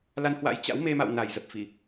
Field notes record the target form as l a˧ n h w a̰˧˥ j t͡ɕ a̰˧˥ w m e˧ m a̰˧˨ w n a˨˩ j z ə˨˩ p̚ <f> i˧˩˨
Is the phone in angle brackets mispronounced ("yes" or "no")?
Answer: no